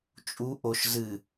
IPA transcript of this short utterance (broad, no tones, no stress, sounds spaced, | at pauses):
t͡ʃʼ u ʔ o ʃ z ɨ